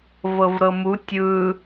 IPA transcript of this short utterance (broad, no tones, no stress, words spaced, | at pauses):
vɤvɾɤmu tʲɯ